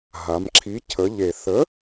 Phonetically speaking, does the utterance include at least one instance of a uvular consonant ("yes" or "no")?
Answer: no